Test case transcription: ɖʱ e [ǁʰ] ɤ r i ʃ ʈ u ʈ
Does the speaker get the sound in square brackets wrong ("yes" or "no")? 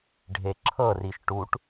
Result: no